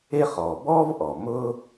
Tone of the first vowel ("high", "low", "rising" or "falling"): high